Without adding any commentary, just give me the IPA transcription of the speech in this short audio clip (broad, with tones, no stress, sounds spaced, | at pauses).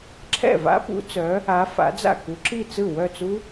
ǁʰ ɛ̰˥˩ v a̰˦˥ p ṵ˨˦ t͡s œː˨˦ | a˨˦ f a̰˨˦ d͡z a̰˥˩ k u˨˦ ǁ i˥˩ t͡s ɯ˥˩ w œ˥˩ t͡s u˦˥